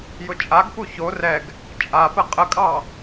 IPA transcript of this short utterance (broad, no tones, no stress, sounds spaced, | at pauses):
j ʊ t͡ʃʼ a ɡ p u ç o r ɛ ɡ | t͡ʃʼ a p ə qʼ ə kʼ ɑ